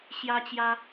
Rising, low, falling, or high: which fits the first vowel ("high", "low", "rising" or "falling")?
high